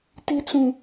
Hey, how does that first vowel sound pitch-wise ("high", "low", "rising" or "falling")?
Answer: high